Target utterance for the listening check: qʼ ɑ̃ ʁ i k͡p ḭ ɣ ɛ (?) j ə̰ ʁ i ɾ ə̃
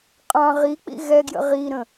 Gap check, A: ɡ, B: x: A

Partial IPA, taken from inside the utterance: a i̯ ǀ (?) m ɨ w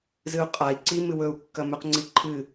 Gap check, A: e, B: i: B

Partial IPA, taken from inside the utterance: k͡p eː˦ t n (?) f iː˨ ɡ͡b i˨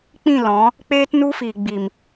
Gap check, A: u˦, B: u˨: A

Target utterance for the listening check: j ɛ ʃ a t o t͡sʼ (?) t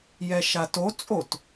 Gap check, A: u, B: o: B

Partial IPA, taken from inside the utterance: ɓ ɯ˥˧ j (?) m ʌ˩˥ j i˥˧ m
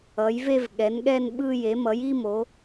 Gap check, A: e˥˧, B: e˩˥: B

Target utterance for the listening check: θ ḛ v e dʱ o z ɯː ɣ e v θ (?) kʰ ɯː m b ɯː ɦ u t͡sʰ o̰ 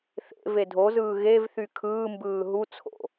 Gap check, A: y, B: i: A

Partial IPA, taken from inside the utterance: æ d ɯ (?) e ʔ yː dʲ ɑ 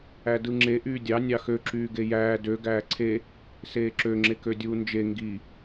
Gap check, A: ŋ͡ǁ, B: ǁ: A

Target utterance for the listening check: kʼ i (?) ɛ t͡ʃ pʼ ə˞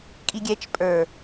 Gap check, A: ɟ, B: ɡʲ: B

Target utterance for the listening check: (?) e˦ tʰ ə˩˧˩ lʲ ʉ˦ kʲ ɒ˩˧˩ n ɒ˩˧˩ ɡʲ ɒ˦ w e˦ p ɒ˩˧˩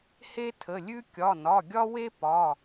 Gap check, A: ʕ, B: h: B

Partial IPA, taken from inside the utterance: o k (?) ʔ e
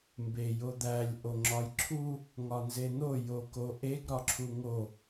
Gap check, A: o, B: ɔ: A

